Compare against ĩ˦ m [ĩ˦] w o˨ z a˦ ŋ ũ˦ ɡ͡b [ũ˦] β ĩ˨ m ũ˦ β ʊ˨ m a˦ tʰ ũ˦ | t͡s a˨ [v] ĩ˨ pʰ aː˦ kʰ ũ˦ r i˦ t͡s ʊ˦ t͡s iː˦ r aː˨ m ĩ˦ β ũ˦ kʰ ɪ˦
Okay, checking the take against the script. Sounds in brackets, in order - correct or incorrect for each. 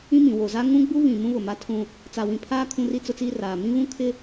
incorrect: ĩ˨, incorrect: u˦, incorrect: w

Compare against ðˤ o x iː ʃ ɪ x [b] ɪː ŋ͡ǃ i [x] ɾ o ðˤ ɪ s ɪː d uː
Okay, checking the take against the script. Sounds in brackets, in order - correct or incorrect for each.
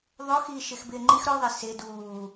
correct, correct

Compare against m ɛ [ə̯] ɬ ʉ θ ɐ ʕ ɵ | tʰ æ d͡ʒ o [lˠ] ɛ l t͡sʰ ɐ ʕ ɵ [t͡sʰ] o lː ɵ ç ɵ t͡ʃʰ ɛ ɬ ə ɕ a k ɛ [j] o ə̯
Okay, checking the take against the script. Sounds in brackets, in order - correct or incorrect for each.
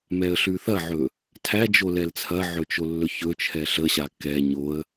correct, incorrect: l, incorrect: t͡ʃ, incorrect: ɲ

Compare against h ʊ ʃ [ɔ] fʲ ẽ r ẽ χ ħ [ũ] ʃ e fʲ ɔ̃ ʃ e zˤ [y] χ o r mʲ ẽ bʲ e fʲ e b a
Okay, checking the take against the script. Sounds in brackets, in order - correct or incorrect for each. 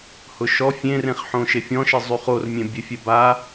correct, incorrect: õ, correct

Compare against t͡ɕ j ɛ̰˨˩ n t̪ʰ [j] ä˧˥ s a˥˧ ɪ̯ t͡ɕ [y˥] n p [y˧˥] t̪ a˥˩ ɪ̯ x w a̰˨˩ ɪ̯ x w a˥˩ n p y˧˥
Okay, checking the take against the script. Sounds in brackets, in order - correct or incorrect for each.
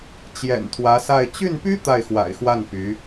incorrect: w, incorrect: y˥˩, incorrect: y˥

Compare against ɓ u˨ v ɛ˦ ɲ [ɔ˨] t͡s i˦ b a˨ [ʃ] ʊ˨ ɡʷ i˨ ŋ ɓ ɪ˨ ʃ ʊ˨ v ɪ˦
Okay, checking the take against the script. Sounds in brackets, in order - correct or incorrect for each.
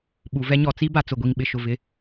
correct, incorrect: t͡s

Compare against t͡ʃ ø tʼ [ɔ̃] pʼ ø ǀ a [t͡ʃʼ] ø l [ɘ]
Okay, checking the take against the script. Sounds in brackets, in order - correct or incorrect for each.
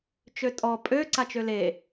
incorrect: ɔ, incorrect: t͡ʃ, incorrect: e

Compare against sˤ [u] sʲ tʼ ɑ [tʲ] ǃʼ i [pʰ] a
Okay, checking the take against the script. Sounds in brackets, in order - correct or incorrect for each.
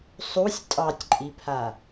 correct, correct, correct

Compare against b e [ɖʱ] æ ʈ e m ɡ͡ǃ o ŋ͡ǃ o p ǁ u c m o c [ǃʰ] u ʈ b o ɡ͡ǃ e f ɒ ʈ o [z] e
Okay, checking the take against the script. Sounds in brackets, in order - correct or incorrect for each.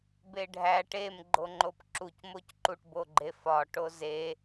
correct, incorrect: ǃ, correct

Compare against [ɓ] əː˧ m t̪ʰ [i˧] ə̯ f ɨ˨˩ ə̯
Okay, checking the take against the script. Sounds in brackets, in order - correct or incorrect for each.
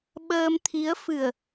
correct, incorrect: i˧˥

